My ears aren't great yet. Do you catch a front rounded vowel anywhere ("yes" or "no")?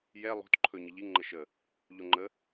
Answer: no